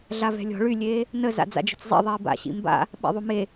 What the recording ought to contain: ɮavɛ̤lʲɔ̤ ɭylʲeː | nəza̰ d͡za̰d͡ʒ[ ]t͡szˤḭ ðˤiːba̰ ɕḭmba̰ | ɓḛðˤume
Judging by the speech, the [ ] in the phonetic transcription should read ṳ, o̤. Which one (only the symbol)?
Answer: o̤